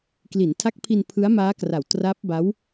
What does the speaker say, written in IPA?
k l i˩˦ n tʰ a˦˥ k̚ pʰ i˧ n pʰ ɯ˦˥ a̯ m aː˦˥ k r a˨˩ w t r a˦˥ p̚ b a˦˥ w

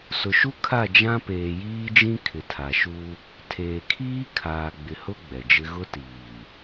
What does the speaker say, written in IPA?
s ʊ˨ ʃ u˦ kʰ a˦˨ d͡ʒ ã˦ p eː˨ j iː˦ d͡ʒ ĩ˦ kʰ ɪ˨ tʰ a˨ ʃ u˦ | tʰ eː˨ kʰ iː˦ kʰ aː˨ ɡ͡b ɪ˨ h ʊ˦ ɡ͡b ɛ˨ d͡ʒ ɪ˦ ɣ ʊ˦ t iː˨

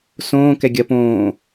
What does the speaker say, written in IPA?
s õː k ɛ ɡʲ ɐ p õː

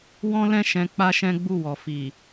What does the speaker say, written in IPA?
w ɔ̃˦ l ɛ̃˦˨ ʃ ɛ̃˧ k͡p a˦ ʃ ɛ̃˦ ɡ͡b u˦˨ w ɔ˨ f i˨

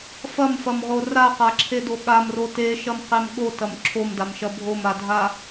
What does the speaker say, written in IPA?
f ɐ m f ɐ m ʁ o r a q a ǁʰ e d o ɠ a m r o t e ʃ ɐ m q e m ɠ o t ɐ m ǁʰ o m d a m ʃ ɐ bʱ o m a dʱ a

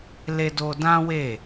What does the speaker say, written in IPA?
l e˧ d o˧ d ã˦ w e˦˨

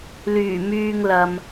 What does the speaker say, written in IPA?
l yː˨˩ m yː˧ ŋ l ɐ˨ m

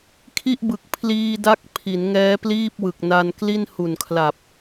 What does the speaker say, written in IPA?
kʰ i˥˩ ʔ b ɯ˨˩ k̚ pʰ l iː˧ d a˦˥ k̚ pʰ i˩˦ n ŋ ɛː˦˥ p l iː˥˩ p̚ w ɯ˨˩ k̚ n a˧ n k l i˥˩ n h u˨˩ n kʰ l a˨˩ p̚

